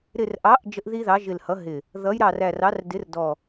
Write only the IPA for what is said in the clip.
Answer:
ɾ ɪ˧˩ r ʔ ɑ˨˥ ʔ d͡ʒ ə˦ ʔ ð i˦ ð ɑ˨˥ ʒ ɪ˧˩ l h ʌ˨˥ ɦ ɪ˧˩ | ð ʌ˨˥ j ɾ ɑ˧˩ r æ˧˩ r ɑ˨˥ r d ɪ˨˥ r d ɔ˧˩

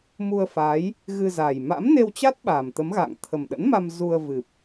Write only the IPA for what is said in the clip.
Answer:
m u˧ ə̯ f a˨˦ j | ɣ ɨ˧ z a˨˩ j m a̰˧˥ m n e˧ w t͡ɕ a˦˥ t̚ ɓ aː˨˩ m t̪ ə˨˦ m ɣ a̰ː˧˨ ŋ t̪ʰ ə˨˩ m ɗ ə̰˧˥ n m a˧ m z u˧ ə̯ v ɨ˨˩ p̚

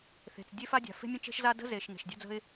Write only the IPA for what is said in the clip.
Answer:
θ e̤˩ t͡s dʲ e˥ f a˥ dʲ a̤˩ f e̤˥ mʲ ə̃˥ t͡ʃ e̤˥ ʃ z a˥ d ə̤˥ z e˩ ʃ ŋ e̤˩ ʃ dʲ a̤˥ d͡z ə̤˥ ɪ̯

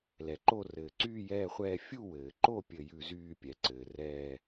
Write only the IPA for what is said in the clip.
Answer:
l ɛ˩ ǃ o˦˨ r ɘː˩ ǀ yː˦˨ j ɛː˦˨ χʷ ɛː˦˨ fʲ u˦˨ w ɘː˩ ǃ o˦˨ pʲ ɘ˦˨ j ʉ˦˨ z yː˦˨ pʲ ɛ˩ ǀ ɘː˩ r ɛː˦˨

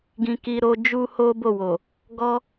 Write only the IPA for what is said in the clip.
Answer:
ɡ ĩ˧ k i˧ ɾ o˧ d͡ʒ u˦ h o˦ b o˦˨ w o˨ | ɡ ɔ˦

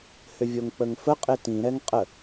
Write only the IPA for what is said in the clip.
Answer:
h ʏ vʲ o ŋ k͡p ə ŋ f ə qʼ ɪ t ĩ ɾ ɛ ŋ qʼ ə

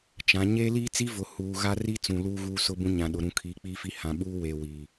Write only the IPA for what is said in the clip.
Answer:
t͡ʃ ã˨˦ ɲ eː˦ l iː˦ t͡s i˦ v ʊ˨ h uː˨ ɣ a˦ r i˦ t͡s ũ˨ l uː˦ ɣ uː˦ s ʊ˦ b ũ˦ ɲ ã˨ ɗ ʊ˨ ɾ ũ˨ kʰ iː˨ k͡p iː˦ f i˦ h ã˨ ɓ uː˦ w e˨ w iː˨

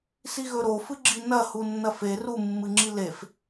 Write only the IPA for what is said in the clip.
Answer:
s i ɣ ɵ ɾ o f ɨ ɡ͡ǁ i n ɐ h u nː ɐ f e r u mː ɨ ŋ͡ǁ i l e f

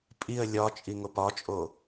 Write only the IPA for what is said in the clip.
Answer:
pʼ i ə̯ lʲ ɒ t͡ʃʼ i ŋ o p ɒ t͡ʃʼ o

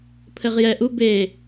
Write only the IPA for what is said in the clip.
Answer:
pʰ ɘ ʁ j ɛ ʔ u b e

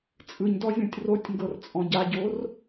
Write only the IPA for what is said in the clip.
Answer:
t͡sʼ ɯ ɲ d ɔ zʲ ɔ̃ tʲ r o tʲ ŋ ɡ ɤ r t͡sʼ ɔ̃ ɟ a ɟ o r

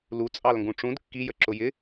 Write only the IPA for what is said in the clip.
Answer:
l u t͡sʼ ɑ l ŋ ɡ ũ ʈ͡ʂ ũ d kː i j ə ǁ ʊ j ɪ

